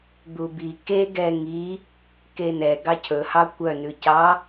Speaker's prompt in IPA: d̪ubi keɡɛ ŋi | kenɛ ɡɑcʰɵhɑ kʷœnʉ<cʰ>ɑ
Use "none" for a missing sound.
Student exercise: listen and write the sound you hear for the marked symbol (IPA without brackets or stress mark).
c